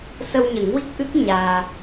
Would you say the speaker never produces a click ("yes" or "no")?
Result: yes